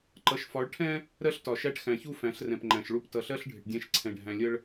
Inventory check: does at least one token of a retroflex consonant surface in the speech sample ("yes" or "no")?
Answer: yes